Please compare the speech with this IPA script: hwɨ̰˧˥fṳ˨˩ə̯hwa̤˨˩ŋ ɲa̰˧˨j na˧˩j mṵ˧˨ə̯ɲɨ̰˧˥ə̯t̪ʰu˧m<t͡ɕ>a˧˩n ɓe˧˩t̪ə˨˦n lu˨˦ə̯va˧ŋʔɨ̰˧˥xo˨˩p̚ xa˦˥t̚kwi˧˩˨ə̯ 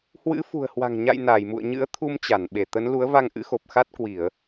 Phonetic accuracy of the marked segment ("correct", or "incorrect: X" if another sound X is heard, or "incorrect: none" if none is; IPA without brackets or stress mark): correct